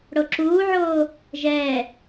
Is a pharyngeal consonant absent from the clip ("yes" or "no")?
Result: no